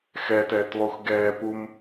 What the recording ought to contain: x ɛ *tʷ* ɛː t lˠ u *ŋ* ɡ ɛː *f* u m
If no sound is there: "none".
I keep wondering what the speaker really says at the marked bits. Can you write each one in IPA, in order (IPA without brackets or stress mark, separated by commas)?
t, x, p